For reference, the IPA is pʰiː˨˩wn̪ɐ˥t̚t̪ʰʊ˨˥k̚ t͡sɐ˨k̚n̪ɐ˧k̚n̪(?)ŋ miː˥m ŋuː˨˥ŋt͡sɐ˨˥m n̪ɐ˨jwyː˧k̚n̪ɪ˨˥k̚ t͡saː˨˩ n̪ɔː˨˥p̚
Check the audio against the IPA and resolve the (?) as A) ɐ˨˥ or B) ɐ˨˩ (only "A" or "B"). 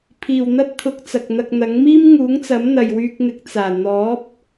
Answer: A